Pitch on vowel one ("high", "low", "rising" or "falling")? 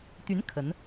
rising